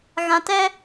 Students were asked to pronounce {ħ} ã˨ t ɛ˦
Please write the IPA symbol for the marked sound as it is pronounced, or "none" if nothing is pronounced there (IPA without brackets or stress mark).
ɣ